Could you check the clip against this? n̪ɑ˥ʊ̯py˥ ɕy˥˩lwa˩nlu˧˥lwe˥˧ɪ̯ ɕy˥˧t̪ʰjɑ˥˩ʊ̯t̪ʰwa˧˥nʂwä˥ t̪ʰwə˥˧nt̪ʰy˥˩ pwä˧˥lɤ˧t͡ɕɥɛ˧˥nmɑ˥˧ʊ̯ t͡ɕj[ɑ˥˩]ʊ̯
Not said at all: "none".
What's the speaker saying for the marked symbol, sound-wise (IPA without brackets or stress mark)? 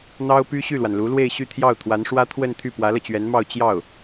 ɑ˥˩